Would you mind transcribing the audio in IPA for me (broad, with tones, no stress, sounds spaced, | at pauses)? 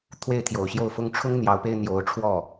t̪ʰ w e˥˩ ɪ̯ t̪ʰ j o˨˩ ʊ̯ ɕ j o˥˩ ʊ̯ f ʊ˥ ŋ ʈ͡ʂʰ ʊ˥ ŋ n̪ j ɑ˧˥ ʊ̯ p e˥ ɪ̯ n̪ j o˧˥ ʊ̯ ʈ͡ʂʰ w ɔ˥˩